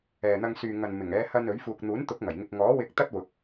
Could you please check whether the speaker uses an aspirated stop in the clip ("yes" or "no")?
no